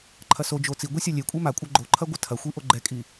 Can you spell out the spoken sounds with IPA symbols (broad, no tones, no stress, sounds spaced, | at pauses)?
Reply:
ǃʰ ɐ s o d͡ʒ o t͡s i ɡʷ i sʲ a lʲ e kʷʼ e m a kʷʼ ɐ ɡ͡ǃ o ǃʰ ɐ ɡʷ ɐ tʰ ɐ xʷ i ʔ o ɡ͡ǃ ɛ kʼ i